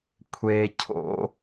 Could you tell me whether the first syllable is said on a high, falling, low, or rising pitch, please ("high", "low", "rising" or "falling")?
high